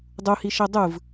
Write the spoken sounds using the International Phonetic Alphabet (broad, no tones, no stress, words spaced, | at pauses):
dˤuhiʃe dˤɯv